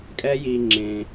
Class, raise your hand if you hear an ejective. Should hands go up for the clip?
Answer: yes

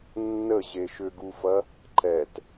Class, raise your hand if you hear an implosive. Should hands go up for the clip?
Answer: no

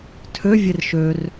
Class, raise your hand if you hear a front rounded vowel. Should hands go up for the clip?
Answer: yes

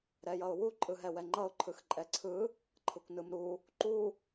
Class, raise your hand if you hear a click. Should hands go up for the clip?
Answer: yes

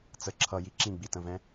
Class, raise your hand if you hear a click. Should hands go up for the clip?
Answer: yes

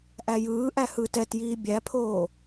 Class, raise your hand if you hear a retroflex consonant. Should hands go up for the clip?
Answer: no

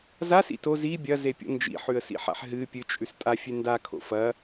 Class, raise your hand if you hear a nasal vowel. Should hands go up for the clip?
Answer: no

